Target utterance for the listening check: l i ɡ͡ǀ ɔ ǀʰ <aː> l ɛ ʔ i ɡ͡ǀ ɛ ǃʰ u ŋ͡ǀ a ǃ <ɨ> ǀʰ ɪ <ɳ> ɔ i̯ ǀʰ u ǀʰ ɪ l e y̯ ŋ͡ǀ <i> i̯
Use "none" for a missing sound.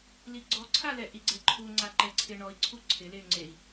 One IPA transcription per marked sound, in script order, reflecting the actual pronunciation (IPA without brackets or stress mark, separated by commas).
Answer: a, ɛ, ɳ, e